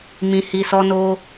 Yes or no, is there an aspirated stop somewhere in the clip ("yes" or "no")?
no